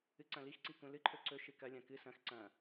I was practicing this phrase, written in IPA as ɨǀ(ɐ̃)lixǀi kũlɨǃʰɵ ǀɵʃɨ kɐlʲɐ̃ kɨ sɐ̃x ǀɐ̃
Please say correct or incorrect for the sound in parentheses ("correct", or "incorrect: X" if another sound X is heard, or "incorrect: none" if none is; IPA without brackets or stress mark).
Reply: correct